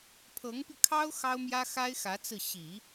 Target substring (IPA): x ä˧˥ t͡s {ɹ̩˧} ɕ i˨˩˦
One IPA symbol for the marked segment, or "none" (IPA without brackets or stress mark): ɹ̩˥˩